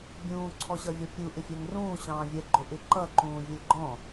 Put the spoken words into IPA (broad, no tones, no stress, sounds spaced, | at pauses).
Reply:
bʲ ũː ǀʰ ɔ ɕ ʌ vʲ ɔ pʲ u ʔ ɪ fʲ ɛ ŋ r ũː ɕ ɑ̃ː vʲ ɛ ɡ͡ǃ ʊ ʔ ɪ ǃ ʌ ǃ ũː vʲ ə lʲ ɡ͡ǃ ɔ̃